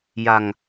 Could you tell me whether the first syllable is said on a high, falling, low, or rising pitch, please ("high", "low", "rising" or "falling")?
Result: low